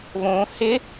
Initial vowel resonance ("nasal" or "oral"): nasal